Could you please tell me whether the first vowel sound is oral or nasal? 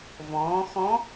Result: nasal